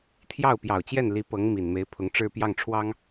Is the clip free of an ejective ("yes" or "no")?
yes